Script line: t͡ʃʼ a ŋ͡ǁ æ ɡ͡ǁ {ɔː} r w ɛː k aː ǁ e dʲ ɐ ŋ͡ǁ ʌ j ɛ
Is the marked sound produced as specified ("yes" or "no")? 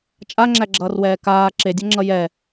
no